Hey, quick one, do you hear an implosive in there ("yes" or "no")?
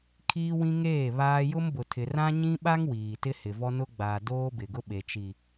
yes